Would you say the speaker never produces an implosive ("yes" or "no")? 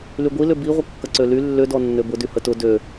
yes